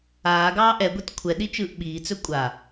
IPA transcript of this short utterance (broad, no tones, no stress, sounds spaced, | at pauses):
aː ɡ ɑː ʔ ɛ ɡʷ ɛ t kʷʰ ɛ ɗ i t͡ʃ ɯː ʔ ɓ iː t͡s ɵ kʷʼ a